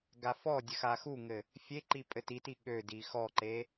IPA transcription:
ɡ a f ɔ dʲ ə x a x u ŋ ɘ | fʲ e ǃ i pʼ ɘ t i t i ɠ ø d i x ɔ ǃ e

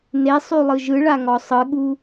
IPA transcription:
n e sˤ y lˠ ɯ ʒ ɯ ɭ a ŋ ɔ sˤ ɯ ɠ u

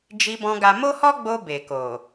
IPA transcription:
d͡ʒ i˧ b ɔ̃˧ ɡ a˧ m o˦ h ɔ˦ ɡ͡b o˧ b e˨ k o˨

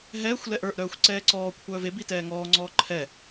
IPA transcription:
ɦ ɛː xʷ l ɛ ʔ ə˞ ʔ ɾ œː xʷ ǀ ɛː ǀ ɔː kʷʰ œː v e b i t ɛː ŋ ɔː ŋ͡ǀ ɔː ǃʰ ɛ

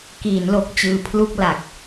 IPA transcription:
k iː˩˦ n l o˨˩ k̚ t͡ɕ ɯː˧ pʰ l u˥˩ k̚ l a˨˩ k̚

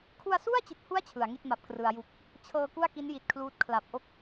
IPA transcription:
kʰ u˧ a̯ s u˥˩ a̯ t͡ɕ i˨˩ t̚ h u˦˥ a̯ t͡ɕʰ ɯ˩˦ a̯ ŋ i˥˩ t̚ m a˨˩ p̚ k r ɯ˩˦ a̯ j u˨˩ k̚ | t͡ɕʰ ɤː˧ k u˥˩ a̯ k i˦˥ n j i˨˩ t̚ kʰ l uː˦˥ t̚ kʰ l a˨˩ p̚ ʔ o˥˩ k̚

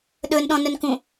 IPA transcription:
ɗ ɵ n ɗ ɔ̃ n ɵ n k ũ

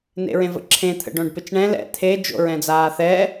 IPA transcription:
n ḛ ɹ ẽ v ə̰ ǁʰ ẽ t̪ʰ ə̰ ɖ õ ɖ p ɪ t͡ʃ ɳ ɛ̃ l ɛ̰ t̪ʰ e d͡ʒ o̰ ɹ ɛ̃ d͡z aː θ ɛ

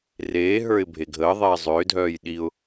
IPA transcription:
r eː ɦ ə˞ ɪ̯ bʱ e ɡʱ əː ðˤ eː zˤ ʏː dʱ œː j ɗ i ʊ̯

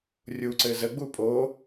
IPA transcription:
rʲ u ǀ ɘ z ə ɡ͡b u pʼ oː

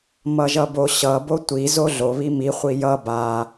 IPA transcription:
m ʌ ʒ ʌ b o ɕ ʌ b o tʷ i z o ɮ o β i m i χʷ i j ʌ b a

